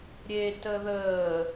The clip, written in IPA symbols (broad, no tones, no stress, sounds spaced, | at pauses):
ɾʲ e t ə ð əː